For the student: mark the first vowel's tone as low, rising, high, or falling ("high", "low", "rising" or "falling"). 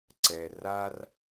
low